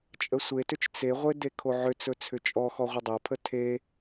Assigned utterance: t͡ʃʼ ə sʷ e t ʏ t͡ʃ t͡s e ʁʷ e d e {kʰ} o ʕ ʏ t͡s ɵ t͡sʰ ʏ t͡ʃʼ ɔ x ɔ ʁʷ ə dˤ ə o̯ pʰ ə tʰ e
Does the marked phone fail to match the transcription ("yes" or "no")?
no